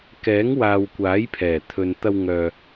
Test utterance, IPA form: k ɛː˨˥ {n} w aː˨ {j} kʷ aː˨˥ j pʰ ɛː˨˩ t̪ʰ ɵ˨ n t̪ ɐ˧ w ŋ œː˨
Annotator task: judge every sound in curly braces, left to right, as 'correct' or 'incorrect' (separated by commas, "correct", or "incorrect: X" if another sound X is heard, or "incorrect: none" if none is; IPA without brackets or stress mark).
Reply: incorrect: ŋ, incorrect: w